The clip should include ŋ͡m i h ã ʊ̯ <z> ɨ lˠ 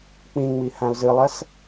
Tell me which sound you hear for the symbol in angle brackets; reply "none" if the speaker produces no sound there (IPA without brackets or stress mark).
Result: z